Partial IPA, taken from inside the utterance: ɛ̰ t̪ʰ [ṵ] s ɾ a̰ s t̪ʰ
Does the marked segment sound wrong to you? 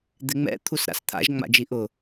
yes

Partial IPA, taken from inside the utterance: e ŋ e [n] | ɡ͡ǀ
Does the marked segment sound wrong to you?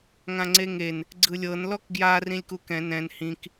no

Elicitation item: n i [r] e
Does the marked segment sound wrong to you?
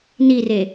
no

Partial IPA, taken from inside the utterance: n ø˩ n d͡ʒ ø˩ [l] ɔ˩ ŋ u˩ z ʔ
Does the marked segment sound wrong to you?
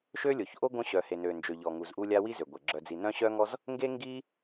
yes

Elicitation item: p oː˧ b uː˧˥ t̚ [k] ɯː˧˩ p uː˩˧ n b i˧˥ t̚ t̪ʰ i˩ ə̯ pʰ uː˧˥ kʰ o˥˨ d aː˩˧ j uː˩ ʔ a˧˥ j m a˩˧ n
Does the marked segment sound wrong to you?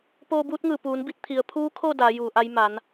yes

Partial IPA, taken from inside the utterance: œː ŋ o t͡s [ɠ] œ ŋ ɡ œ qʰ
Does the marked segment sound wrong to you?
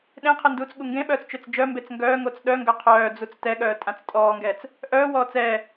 yes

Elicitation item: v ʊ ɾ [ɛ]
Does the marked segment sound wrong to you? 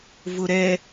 no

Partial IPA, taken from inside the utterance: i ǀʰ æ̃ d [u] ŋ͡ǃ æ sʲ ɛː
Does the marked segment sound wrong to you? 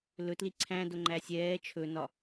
yes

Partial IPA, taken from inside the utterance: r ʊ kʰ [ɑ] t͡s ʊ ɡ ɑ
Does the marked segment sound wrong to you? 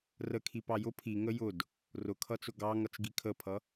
yes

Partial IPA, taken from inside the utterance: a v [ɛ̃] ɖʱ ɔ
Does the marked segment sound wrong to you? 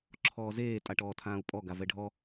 yes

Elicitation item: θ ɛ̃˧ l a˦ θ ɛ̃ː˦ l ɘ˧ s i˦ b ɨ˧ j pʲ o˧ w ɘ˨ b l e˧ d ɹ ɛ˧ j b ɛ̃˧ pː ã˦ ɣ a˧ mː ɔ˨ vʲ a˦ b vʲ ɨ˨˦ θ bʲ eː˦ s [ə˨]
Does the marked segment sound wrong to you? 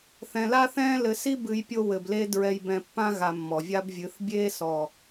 yes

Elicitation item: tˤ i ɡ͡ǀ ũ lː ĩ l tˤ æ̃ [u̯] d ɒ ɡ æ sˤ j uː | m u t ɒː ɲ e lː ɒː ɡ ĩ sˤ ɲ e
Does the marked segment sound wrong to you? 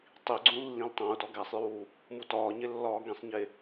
no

